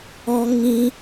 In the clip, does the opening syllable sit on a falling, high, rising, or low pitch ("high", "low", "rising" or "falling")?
high